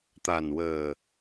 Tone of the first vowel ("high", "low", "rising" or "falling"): low